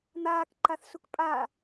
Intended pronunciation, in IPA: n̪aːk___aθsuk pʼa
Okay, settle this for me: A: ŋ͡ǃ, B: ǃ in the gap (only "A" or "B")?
B